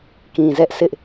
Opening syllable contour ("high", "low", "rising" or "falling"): low